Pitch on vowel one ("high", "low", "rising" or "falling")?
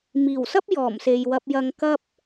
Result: low